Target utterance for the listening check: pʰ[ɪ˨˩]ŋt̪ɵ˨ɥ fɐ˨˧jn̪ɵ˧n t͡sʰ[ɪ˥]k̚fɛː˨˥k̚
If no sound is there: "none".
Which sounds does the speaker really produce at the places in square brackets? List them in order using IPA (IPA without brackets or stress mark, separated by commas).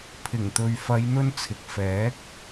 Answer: ɪ˨˩, ɪ˨